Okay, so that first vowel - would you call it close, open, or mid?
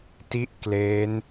close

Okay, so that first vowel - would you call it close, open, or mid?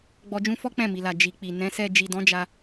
mid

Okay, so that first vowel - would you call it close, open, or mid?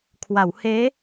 open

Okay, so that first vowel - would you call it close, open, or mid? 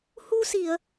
close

